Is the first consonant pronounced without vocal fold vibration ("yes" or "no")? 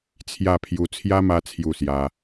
yes